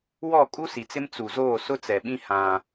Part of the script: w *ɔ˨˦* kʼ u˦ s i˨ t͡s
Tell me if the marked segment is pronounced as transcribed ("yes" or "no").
no